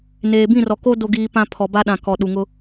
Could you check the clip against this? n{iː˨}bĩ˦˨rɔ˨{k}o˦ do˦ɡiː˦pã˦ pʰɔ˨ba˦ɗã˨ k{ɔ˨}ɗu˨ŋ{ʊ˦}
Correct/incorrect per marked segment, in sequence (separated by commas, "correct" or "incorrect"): incorrect, correct, correct, correct